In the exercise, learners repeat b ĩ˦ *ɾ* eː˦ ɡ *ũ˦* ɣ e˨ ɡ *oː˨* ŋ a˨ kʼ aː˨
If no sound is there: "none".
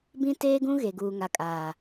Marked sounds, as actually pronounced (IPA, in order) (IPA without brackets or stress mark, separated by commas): t, ũ˦, uː˨